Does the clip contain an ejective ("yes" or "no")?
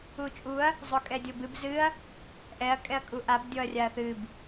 yes